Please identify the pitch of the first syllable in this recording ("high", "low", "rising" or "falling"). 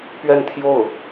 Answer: falling